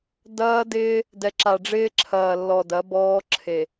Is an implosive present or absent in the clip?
absent